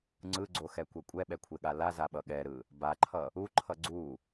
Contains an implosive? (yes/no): yes